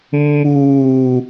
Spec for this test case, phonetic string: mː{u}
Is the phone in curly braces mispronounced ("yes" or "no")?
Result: yes